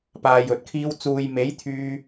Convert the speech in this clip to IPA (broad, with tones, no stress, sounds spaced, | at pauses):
p aː˨ j ɵ˨ t̚ kʰ iː˧ w t͡s uː˨ j m e˨˥ j t̪ʰ yː˧